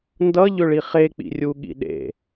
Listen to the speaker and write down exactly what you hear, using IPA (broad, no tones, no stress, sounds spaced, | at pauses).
n d ʌ ʎ ʏ ɭ i χ e k͡p ḭ rʲ u ɠ ḭ ɗ ḛ